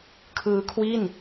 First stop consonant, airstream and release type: aspirated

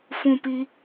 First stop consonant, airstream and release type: plain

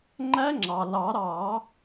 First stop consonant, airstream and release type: click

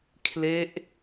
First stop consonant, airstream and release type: aspirated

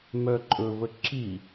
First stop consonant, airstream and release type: click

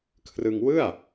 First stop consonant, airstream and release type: aspirated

